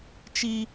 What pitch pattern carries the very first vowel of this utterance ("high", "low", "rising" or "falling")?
high